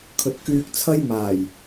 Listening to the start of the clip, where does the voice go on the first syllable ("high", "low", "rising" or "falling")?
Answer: low